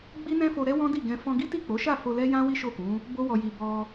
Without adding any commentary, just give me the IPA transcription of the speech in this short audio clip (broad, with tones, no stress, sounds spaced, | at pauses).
ɡ͡b i˦ n ɛ̃˦ f o˧ ɾ ɛ˦ w ɔ̃˦ d i˦˨ ɡ ɛ̃˧ f ɔ̃˧ ɡ i˦ t i˦˨ k͡p o˨˦ ʃ a˦˨ f o˧ l ɛ˦ j ã˦ w i˦ ʃ o˦˨ k ũ˨˦ | b o˦ w ɔ˧ j i˧ b ɔ˧